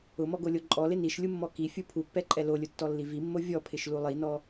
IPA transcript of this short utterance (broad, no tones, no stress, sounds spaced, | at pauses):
ʊ m ɔ ɡ o lʲ o ǃʼ ɔ l ɪ n i ʃ lʲ u mː ɔ k i fʲ u pʰ u pː ɛ ǃʼ ɛ l o lʲ ʊ tː ɔ lː i v i mː o vʲ ɔ pʰ ɪ ʃ l u lˠ i n ɔ